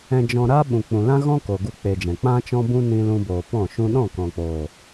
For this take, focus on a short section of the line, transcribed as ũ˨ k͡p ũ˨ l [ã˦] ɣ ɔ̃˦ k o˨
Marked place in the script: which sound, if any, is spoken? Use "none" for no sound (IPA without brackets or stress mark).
ã˦